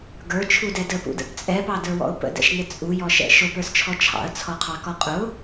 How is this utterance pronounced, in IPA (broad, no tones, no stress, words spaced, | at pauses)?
ɡə˞t͡ʃʰudɛ dəpṵdə̰p t͡sʼɛpɑdə˞wɔ̰ʊ̯ pə̰dɛ̰ʃnɪ t͡sʼujɔʃɛ̰ ʃʊpə˞st͡ʃʰɔ t͡ʃʰɑ̰ə̯t͡sʰɔqʰɑkɔ qʼʊ